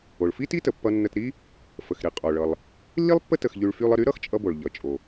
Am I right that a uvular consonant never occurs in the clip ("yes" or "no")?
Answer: no